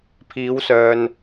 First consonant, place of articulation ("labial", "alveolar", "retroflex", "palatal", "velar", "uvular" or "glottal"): labial